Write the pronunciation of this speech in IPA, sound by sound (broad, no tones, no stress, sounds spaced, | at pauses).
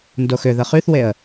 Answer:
n d o x ʏ ð ə χ y θ w e ə̯